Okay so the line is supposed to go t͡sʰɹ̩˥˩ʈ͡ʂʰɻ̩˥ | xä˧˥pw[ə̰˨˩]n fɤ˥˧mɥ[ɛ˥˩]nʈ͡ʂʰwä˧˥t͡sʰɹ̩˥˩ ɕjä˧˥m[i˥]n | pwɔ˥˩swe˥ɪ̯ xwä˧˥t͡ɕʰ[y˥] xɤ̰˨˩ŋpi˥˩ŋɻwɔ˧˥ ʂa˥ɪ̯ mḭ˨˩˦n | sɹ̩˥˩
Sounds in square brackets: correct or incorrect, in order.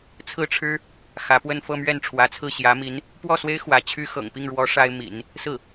incorrect, correct, incorrect, correct

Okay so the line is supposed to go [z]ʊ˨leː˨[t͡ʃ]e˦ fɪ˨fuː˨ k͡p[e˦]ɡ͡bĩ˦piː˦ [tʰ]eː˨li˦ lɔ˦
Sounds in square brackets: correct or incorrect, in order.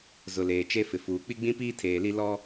correct, correct, incorrect, correct

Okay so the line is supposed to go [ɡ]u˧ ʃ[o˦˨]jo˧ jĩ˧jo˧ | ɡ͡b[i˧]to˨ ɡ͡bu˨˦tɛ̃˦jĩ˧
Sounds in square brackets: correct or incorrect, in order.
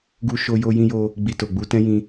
correct, incorrect, correct

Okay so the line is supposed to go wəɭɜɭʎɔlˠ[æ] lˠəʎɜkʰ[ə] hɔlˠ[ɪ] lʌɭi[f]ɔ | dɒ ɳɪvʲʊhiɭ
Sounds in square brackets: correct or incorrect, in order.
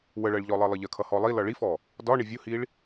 incorrect, incorrect, incorrect, correct

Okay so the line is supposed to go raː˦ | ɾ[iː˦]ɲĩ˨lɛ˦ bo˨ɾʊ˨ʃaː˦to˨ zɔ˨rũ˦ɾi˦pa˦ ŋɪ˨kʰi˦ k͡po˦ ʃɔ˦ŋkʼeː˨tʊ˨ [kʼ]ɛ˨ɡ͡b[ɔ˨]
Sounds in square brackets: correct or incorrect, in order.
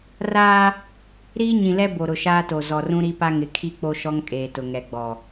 correct, incorrect, correct

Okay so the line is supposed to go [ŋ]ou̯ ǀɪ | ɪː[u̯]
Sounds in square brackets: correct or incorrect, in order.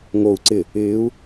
correct, correct

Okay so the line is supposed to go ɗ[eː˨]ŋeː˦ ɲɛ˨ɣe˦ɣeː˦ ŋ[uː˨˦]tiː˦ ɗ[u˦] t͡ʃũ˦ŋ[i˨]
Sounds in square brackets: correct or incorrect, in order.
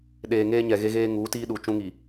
correct, correct, incorrect, correct

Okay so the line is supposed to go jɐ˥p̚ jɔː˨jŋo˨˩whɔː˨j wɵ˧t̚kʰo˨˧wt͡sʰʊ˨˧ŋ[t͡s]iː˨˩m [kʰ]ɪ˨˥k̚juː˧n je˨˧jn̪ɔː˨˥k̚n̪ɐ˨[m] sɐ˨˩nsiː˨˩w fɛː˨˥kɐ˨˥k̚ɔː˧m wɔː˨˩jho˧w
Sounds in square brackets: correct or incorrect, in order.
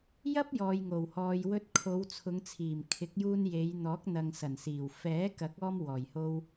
incorrect, correct, incorrect

